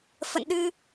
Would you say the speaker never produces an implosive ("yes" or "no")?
no